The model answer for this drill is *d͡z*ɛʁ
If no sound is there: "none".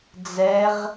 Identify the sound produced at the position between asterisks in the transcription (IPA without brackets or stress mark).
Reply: d͡z